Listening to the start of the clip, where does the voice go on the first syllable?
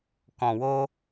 low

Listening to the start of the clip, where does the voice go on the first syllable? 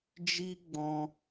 high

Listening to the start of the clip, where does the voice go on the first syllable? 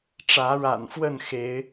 rising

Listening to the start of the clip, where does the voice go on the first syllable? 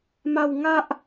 falling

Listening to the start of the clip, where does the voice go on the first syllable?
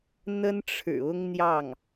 high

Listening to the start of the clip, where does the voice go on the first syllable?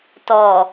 low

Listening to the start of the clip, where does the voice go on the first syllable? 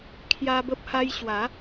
high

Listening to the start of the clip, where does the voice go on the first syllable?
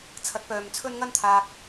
rising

